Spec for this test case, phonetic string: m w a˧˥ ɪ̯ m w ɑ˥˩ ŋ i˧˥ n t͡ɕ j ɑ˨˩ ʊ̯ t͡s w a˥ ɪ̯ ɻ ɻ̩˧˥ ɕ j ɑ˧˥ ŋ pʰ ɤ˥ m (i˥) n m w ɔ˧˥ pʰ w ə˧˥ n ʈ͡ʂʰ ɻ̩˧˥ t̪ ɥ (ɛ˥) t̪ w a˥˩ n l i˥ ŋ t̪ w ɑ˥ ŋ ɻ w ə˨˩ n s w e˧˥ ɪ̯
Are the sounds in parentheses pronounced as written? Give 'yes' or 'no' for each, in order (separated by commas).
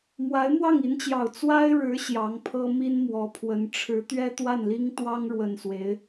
yes, yes